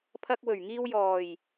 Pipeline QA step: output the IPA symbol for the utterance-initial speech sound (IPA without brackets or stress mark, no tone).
pʰ